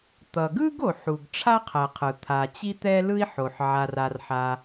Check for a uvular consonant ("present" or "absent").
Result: present